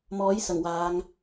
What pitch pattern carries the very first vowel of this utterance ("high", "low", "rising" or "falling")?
rising